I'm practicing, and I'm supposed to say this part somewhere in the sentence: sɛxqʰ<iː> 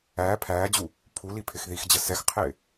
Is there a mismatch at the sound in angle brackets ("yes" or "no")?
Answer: yes